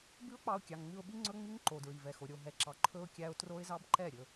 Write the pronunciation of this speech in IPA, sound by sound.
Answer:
bʉ˦ʊ̯k͡pɑ˧ʊ̯ kʲɑ˨ŋŋ͡mʉ˧ʊ̯ɓi˦ ŋ͡ǀɵ˦ŋ͡mi˦ŋǃo˨ dɹi˨vɛ˨xo˨ ɾʲo˧ɦɛ˧ǁɑ˧ ǃʰɵ˦ʊ̯ kʲæ˧ʊ̯ tro˦ɪ̯zɑ˦bǃɛ˦˨ɾʲɵ˧

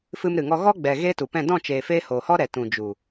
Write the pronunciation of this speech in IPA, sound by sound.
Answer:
fɨ˧mɾɨ˨ŋɔ˧ ɣɔ˦ɡ͡bɛ˨ ɣeː˦tu˨pɛ̃˦˨ dɔ̃˦˨t͡ʃeː˨feː˧ hoː˨hɔ˦ɾɛ˨ tũ˨d͡ʒu˨

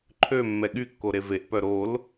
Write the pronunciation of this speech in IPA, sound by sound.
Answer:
ǃʰø mːɛɠykːo ɾeveʔpœ ɾol

